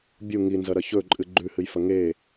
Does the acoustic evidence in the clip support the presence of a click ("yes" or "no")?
yes